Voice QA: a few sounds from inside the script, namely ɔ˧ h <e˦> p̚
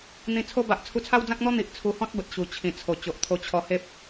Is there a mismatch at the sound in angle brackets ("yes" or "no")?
no